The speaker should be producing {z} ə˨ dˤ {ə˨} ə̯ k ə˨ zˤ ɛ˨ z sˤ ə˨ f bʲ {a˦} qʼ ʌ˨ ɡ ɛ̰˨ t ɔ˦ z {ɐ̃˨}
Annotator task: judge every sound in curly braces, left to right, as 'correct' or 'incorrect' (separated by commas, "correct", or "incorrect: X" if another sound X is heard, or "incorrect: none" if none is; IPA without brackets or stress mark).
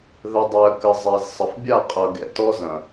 incorrect: ð, incorrect: ɛ˨, incorrect: a˦˨, correct